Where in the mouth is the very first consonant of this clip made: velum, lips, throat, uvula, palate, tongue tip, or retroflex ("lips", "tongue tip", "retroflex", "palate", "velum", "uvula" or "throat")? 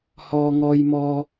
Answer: throat